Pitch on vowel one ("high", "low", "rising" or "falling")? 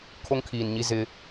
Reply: high